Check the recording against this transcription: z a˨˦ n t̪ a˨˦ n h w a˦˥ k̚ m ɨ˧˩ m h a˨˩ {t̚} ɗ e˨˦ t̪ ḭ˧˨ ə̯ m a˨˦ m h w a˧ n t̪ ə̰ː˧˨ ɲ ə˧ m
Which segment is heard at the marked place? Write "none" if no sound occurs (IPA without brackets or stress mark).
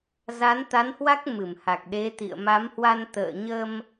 k̚